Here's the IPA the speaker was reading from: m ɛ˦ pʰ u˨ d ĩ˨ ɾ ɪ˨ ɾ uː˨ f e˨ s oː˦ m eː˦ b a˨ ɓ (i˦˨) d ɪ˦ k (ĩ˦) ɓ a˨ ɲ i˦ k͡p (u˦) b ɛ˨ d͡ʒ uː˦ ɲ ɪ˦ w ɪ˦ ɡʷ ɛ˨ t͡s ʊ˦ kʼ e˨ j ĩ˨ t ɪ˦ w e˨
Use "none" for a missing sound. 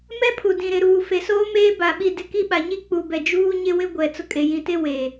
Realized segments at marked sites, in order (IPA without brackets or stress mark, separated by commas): i˦˨, i˦, u˨